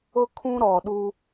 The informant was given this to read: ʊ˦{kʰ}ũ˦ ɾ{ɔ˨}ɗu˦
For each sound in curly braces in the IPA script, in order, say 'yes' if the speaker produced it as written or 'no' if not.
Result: yes, yes

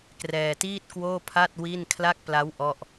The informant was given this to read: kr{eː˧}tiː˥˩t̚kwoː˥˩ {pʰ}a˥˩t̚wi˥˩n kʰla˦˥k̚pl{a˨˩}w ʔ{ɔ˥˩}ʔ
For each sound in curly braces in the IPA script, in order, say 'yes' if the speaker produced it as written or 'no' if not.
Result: no, yes, no, yes

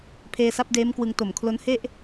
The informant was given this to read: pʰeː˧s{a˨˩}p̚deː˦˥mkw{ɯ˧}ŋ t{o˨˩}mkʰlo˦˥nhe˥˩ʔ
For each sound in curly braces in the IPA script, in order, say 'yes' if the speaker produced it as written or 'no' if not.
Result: no, yes, yes

